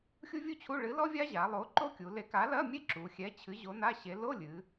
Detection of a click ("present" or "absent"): present